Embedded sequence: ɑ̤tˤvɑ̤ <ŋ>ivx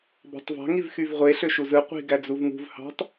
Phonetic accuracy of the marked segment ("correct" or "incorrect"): correct